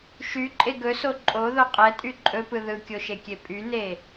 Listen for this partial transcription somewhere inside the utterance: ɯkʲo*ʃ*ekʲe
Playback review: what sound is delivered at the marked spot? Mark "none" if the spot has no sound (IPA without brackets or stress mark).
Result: ʃ